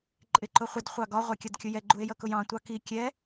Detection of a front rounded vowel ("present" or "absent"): absent